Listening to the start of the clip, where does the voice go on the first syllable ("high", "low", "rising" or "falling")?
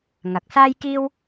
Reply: rising